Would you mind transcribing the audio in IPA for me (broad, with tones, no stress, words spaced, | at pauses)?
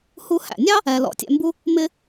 hu˧hæ̰˩nʲɑ˥ | ɛ˧l ɔ̰˧tʲɛ̰˧mbu˥ | mɪ˥